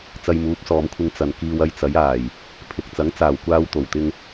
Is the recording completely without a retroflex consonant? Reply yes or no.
yes